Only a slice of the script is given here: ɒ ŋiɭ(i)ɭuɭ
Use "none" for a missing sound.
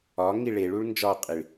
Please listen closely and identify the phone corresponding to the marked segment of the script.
e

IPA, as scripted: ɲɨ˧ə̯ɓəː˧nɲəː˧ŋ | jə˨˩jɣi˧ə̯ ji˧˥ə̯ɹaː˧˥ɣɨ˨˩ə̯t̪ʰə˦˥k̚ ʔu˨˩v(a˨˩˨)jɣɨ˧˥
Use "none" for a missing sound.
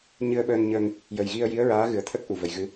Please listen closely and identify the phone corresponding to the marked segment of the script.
ə˨˩˨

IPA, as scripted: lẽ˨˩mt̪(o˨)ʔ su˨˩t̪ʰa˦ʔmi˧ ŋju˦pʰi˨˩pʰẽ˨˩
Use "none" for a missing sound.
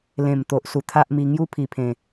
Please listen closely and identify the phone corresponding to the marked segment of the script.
o˨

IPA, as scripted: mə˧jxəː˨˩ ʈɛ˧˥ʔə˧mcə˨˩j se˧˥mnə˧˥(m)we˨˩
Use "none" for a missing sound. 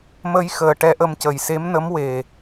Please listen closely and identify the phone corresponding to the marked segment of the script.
m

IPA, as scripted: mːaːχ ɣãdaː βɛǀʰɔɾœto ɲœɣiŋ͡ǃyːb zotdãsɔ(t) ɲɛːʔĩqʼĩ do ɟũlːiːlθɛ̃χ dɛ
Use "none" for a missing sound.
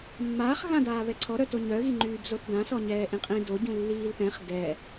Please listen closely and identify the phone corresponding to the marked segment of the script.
none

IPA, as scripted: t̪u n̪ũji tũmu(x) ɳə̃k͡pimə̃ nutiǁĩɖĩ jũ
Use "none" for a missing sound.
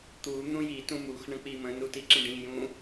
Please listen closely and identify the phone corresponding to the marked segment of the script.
x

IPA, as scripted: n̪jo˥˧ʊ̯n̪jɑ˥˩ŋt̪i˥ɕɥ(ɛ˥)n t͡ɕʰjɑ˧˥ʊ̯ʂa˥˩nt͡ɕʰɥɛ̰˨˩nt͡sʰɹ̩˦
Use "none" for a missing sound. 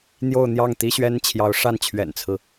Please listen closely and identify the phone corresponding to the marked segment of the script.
ɛ˥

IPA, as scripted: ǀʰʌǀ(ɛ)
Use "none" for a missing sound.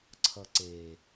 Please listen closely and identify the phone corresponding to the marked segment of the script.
e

